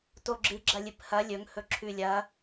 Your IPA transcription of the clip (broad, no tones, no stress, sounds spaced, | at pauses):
t o ɡ͡ǁ ɨ ɡ͡ǁ ɐ lʲ ɨ p h ɐ lʲ ɵ ŋ h ɵ ǁʰ ʉ lʲ ɐ